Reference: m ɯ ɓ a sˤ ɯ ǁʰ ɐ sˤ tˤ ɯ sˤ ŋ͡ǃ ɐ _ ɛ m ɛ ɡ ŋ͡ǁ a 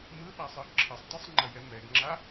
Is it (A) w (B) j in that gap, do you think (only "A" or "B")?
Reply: B